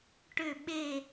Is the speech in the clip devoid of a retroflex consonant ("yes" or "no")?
no